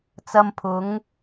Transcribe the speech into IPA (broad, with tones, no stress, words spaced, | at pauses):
t͡sɐ˧mpʰʊ˨˥ŋ